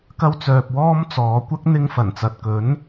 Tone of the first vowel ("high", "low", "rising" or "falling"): high